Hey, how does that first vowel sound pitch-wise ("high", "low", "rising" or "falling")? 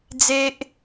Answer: high